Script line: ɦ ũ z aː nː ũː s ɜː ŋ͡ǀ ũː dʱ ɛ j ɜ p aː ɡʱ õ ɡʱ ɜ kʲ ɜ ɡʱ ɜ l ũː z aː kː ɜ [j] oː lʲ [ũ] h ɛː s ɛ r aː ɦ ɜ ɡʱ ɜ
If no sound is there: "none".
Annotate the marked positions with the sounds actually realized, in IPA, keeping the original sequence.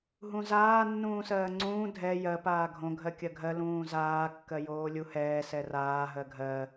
j, u

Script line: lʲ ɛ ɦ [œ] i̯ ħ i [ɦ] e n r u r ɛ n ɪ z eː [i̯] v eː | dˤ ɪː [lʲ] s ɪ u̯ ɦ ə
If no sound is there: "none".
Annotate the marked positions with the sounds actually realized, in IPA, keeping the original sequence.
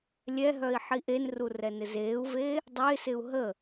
œ, ʔ, u̯, none

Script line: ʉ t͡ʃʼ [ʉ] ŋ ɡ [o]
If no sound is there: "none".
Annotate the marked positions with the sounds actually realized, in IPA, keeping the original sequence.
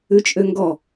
ø, ɔ

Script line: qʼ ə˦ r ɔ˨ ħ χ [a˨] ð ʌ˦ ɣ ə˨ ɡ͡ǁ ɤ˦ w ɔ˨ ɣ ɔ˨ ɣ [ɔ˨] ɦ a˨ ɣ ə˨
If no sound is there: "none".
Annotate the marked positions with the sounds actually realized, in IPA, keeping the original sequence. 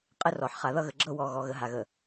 a˨, ə˨

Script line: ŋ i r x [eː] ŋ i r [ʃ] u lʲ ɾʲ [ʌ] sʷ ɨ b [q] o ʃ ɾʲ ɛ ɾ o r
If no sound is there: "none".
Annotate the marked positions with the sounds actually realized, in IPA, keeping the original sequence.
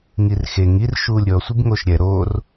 e, ʃ, ɔ, ŋ

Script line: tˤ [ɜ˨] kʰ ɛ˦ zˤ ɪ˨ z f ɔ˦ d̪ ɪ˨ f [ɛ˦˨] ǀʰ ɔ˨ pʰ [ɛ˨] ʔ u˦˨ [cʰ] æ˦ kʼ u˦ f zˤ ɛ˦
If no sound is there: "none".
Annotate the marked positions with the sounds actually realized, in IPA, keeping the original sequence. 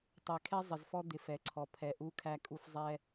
ɛ˨, ɛ˨, ɛ˨, kʰ

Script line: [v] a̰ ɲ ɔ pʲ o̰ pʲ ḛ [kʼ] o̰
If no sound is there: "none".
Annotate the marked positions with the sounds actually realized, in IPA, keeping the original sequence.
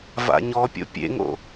v, ŋ

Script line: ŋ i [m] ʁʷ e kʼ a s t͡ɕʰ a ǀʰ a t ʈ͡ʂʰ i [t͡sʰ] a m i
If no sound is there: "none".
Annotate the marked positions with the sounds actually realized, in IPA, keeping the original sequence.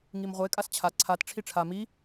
m, ʈ͡ʂʰ

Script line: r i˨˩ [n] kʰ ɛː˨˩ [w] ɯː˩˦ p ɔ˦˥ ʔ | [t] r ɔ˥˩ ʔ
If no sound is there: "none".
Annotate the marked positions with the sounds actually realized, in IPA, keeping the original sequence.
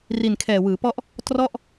n, w, t

